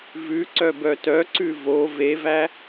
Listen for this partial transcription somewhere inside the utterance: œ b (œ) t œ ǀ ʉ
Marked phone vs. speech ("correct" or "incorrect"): correct